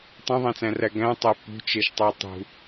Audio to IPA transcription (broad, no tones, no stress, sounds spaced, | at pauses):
tˤ ẽ ðˤ æ̃ t͡s æ̃ r æ ɡ æ̃ tˤ æ p ṳ t͡ʃ e ʃ tˤ æ tˤ ṳ